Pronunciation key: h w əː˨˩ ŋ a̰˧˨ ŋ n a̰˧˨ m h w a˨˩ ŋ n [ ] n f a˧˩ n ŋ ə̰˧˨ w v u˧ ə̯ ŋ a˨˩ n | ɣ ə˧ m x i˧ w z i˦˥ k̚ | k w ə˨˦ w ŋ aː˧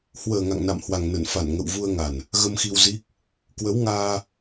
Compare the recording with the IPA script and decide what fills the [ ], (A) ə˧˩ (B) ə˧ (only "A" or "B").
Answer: A